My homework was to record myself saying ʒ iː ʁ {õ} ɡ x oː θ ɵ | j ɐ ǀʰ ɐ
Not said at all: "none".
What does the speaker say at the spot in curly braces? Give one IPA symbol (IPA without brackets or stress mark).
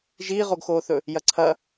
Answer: o